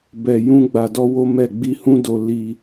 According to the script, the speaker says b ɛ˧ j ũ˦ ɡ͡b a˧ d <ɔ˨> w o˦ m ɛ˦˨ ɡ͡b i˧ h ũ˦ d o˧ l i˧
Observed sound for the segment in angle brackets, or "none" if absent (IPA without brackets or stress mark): ɔ˦